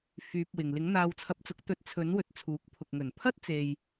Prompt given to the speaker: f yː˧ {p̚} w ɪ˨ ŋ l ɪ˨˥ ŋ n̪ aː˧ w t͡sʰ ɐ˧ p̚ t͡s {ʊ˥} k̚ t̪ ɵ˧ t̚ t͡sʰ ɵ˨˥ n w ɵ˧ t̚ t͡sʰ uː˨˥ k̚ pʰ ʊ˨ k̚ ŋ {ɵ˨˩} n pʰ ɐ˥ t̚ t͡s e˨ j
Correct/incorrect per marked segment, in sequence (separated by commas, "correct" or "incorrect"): correct, incorrect, correct